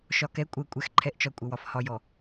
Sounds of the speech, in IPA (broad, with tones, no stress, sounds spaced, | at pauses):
ʃ ɒ˨ k ɛ˨˦ kʷʼ ɜ˨ kʷʼ ɛ˨ x ǃʰ ɛ˨ ʔ t͡ʃ ɒ˨ kʷʼ ə˨ w ɒ˨ f h ɒ˨ j ɔ˨